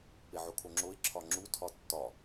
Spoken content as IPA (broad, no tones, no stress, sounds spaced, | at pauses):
p e ʕ o kʰ o ŋ͡ǁ o ɪ̯ ǁʰ ɒ ŋ͡ǁ u tʰ ɒ tː ɒ